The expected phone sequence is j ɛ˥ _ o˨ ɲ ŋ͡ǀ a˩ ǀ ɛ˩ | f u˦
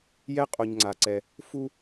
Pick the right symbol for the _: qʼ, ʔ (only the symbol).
qʼ